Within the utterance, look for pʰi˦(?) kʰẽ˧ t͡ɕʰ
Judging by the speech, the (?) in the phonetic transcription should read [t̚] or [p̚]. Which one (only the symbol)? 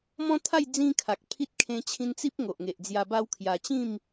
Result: t̚